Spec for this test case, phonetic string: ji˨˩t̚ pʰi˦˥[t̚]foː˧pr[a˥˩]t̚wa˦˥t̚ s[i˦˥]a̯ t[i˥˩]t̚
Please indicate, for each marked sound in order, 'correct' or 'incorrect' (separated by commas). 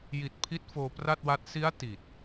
correct, correct, correct, incorrect